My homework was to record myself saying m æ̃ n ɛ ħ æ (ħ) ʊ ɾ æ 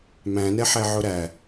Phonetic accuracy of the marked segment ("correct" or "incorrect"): incorrect